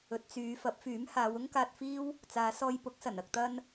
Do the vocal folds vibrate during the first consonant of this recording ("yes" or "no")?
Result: no